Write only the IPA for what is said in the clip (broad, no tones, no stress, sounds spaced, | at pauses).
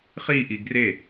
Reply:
χ i ʔ i ɡ r e